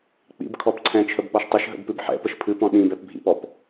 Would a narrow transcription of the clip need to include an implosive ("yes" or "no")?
yes